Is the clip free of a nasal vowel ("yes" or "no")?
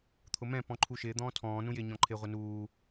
no